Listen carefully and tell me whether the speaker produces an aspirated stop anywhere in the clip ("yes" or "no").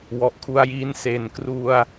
yes